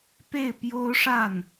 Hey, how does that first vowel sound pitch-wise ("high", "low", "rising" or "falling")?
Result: falling